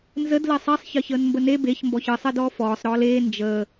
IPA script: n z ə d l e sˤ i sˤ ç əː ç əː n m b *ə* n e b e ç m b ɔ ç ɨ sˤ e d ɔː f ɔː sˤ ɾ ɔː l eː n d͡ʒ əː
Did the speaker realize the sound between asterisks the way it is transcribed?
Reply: yes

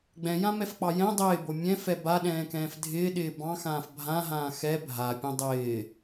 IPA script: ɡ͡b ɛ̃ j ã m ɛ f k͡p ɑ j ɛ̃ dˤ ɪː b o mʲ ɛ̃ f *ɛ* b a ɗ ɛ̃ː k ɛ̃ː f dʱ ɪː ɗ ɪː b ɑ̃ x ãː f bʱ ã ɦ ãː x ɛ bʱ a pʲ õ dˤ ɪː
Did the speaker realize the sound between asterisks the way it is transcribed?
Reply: yes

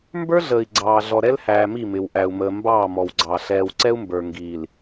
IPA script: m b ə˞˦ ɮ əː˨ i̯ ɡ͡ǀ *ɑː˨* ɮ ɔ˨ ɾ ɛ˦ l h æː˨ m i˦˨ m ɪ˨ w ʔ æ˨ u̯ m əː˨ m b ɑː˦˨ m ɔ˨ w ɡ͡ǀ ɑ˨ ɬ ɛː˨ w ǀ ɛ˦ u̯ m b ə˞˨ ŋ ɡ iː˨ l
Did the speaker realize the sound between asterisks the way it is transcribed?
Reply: yes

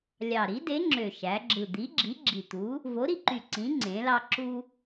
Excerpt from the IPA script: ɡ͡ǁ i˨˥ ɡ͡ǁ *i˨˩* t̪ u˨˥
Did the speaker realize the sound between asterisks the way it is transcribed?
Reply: yes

